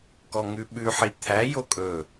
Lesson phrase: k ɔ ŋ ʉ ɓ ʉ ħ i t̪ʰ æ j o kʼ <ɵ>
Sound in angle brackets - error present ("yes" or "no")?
no